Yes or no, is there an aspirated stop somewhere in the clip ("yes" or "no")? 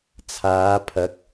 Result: yes